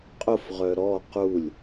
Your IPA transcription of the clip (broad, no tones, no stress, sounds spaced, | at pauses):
qʼ ʊ f ʁ œ ɾ ɔ q u lʲ